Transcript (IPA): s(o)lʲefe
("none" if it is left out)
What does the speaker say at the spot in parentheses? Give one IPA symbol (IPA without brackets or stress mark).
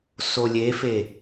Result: o